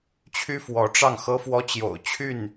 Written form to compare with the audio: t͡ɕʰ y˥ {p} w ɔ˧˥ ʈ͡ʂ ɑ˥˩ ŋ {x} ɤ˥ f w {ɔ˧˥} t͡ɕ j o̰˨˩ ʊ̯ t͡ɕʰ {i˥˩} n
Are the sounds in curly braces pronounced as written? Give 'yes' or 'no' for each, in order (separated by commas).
no, yes, no, no